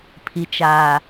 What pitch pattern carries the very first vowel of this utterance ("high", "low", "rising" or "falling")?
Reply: low